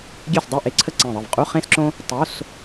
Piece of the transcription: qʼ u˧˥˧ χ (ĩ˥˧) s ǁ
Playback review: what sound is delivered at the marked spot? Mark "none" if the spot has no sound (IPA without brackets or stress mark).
ẽ˥˧